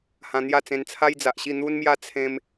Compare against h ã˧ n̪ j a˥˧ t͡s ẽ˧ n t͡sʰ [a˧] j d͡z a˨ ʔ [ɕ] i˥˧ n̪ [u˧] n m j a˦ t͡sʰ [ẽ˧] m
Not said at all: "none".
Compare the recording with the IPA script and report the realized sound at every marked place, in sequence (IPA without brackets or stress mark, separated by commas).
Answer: a˦, ɕ, u˦, ẽ˧